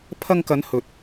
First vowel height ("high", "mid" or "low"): low